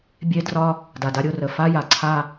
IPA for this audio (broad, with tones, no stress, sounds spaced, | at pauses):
bʲ e˦ d r ɒ˦ | d a˨ d a˦ ɾʲ o˦ r ə˨ f a˦ j a˨ ǀʰ a˦